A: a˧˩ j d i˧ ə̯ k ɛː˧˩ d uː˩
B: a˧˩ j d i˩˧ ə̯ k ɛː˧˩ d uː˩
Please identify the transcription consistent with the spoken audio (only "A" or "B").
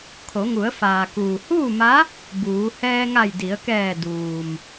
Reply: B